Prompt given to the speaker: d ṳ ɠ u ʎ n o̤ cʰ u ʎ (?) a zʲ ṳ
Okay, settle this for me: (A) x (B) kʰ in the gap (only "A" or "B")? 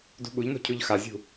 A